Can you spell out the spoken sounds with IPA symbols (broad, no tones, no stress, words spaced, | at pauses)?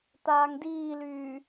t̪aːŋdiːlyː